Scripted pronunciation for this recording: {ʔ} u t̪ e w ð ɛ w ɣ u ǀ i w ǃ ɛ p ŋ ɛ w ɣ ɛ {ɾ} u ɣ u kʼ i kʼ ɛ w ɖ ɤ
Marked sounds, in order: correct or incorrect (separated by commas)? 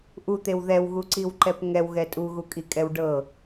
correct, incorrect